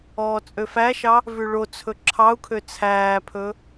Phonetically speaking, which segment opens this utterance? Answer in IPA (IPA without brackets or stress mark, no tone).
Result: ɔː